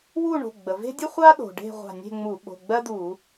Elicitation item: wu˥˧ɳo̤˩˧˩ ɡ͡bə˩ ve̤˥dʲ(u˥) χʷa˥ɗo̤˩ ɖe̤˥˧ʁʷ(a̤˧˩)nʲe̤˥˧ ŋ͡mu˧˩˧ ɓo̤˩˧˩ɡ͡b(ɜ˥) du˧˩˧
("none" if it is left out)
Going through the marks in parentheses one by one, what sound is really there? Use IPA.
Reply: u˥, a̤˧˩, ɜ˥

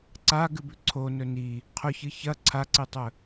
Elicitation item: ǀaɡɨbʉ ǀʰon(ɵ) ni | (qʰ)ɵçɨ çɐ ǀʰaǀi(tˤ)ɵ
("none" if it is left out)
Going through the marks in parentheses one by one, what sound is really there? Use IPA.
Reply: ɵ, qʰ, tˤ

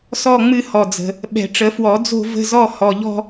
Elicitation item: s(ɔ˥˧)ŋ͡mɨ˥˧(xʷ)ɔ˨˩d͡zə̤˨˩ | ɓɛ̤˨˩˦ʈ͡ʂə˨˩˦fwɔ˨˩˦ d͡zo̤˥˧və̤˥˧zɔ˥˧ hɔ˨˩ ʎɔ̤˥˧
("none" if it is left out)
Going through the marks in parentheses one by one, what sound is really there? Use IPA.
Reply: ɔ˥˧, h

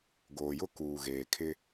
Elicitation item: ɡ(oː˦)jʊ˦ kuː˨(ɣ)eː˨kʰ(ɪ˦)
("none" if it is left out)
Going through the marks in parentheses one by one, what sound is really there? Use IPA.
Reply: oː˨, ɣ, ɪ˦

